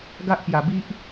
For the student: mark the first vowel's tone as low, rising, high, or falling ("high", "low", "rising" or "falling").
high